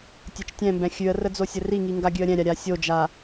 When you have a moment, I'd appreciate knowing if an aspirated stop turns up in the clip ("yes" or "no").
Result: no